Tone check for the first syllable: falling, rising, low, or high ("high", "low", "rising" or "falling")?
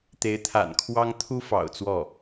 rising